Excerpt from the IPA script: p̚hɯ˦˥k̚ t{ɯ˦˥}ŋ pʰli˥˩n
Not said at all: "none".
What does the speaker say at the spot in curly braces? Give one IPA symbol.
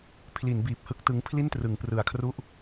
ɯ˦˥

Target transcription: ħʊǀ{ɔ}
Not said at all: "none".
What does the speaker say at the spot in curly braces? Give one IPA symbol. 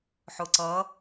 ʌ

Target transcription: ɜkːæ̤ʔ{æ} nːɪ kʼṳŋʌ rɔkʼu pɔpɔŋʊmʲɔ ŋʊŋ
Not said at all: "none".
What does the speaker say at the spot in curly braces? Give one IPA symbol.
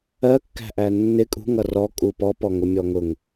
æ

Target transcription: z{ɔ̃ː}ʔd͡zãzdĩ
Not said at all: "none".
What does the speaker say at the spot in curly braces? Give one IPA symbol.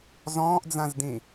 ɔ̃ː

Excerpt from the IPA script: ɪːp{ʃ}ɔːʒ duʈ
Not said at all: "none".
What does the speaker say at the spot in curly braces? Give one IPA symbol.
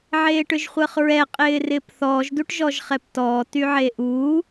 θ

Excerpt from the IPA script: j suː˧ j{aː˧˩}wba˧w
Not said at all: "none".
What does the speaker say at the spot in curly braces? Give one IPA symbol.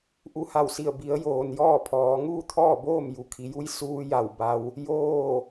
a˧˩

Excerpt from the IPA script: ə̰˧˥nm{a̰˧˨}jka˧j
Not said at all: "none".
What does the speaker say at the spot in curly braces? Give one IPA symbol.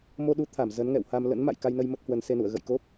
a̰˧˨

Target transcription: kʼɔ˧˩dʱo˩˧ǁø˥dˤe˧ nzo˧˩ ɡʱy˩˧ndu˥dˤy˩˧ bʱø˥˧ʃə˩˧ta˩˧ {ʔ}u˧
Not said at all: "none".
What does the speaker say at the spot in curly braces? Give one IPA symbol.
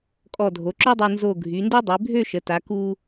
k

